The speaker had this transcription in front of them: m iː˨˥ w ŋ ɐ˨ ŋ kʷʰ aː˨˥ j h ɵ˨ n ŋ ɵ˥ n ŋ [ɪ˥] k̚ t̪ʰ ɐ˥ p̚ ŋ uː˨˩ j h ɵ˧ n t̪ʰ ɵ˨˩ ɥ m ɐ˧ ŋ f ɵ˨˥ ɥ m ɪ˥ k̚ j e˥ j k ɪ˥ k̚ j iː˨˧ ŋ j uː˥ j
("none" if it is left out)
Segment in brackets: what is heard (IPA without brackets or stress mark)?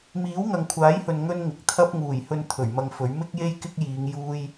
ɪ˨˥